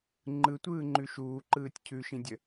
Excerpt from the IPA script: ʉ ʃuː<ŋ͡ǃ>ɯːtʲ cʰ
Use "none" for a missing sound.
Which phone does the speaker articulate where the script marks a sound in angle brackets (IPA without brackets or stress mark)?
ǃ